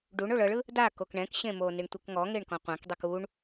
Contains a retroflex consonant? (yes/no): yes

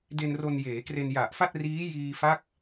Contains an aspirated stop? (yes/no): no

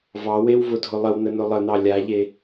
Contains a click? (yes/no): no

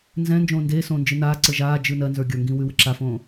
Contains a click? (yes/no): yes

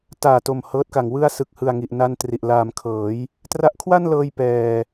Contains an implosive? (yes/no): no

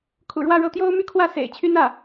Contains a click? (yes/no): no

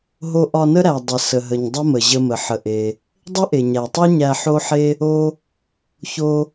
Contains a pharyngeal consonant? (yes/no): yes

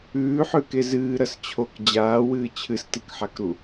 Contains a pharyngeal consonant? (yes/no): yes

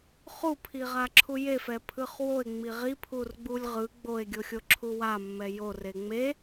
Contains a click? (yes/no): yes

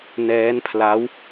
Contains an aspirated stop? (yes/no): yes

